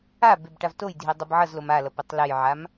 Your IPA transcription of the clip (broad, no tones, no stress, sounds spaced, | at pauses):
a b e b ʈ a v t o j dʱ i dˤ ɯ b ʕ ʌ z l o m a l ʌ p e tˤ l ɛ j ʕ a m